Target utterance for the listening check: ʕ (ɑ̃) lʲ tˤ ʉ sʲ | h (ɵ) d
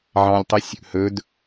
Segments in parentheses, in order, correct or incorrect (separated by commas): correct, correct